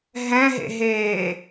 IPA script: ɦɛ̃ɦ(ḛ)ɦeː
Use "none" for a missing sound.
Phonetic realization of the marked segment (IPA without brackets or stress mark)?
ḛ